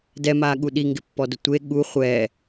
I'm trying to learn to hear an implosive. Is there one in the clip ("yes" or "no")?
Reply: yes